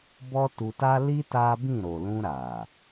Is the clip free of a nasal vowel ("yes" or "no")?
no